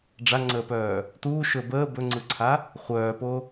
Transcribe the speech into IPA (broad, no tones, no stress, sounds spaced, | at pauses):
ɖ͡ʐ a ŋ͡ǀ əː p œː | t uː ʃ ɵ b əː b ɵ ŋ͡ǀ ɯ ǀʰ a | χʷ œː p o